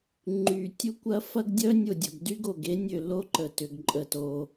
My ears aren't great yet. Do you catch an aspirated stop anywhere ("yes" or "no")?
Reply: no